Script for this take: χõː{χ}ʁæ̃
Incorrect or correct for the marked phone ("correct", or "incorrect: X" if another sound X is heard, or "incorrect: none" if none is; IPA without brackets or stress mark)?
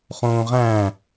incorrect: none